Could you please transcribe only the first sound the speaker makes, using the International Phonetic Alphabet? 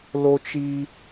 l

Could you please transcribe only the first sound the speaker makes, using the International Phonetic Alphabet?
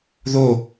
ð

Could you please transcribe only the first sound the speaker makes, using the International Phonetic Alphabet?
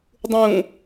dˤ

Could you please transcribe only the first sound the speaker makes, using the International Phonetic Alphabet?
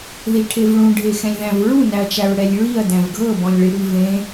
ð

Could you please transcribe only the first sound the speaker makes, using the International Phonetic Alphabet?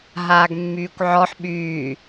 ɦ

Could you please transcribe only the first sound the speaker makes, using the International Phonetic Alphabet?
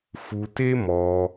f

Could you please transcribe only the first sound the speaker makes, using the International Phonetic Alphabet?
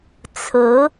t͡sʰ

